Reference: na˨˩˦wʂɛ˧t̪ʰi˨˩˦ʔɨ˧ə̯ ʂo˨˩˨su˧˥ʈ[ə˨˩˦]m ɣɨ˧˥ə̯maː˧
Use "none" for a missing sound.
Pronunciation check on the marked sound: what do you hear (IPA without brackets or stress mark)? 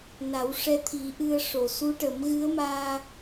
ə˨˩˦